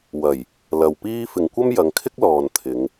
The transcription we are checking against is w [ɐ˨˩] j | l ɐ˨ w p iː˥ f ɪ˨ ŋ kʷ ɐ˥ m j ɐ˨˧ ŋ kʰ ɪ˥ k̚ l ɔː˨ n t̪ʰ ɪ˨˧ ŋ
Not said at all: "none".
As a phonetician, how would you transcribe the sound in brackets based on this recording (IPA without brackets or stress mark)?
ɐ˨˩